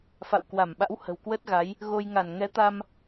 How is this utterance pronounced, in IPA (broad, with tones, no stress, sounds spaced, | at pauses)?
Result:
f a̰˧˨ w k w a˧˩ m ɓ a̰˧˥ w h ə̤˨˩ w k w əː˦˥ t̚ ɣ a˨˦ j | ɣ o˧ j ŋ a˧˩ n ŋ ɛ˨˦ t̪ a˧ m